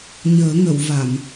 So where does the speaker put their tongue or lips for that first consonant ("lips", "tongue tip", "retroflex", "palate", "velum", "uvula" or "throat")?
palate